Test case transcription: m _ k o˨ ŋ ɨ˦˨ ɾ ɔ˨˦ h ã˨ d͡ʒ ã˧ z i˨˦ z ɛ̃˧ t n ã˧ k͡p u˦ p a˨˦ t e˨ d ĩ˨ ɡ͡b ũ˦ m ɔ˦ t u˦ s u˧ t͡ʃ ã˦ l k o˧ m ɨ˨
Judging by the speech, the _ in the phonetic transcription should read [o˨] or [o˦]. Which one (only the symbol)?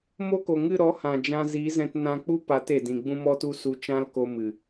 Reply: o˦